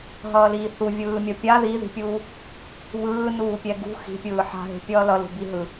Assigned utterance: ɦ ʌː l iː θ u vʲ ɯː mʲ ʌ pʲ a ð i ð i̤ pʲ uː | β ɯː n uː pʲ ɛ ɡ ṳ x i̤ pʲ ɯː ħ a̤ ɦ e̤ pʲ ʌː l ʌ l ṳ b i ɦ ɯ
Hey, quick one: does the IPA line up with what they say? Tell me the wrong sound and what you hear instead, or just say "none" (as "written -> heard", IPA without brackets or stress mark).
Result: none